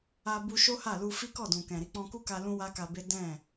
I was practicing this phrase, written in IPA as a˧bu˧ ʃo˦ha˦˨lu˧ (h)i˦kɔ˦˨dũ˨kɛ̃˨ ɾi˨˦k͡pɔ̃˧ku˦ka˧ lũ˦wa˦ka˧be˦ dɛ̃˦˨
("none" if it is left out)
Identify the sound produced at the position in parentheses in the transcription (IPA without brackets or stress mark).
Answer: f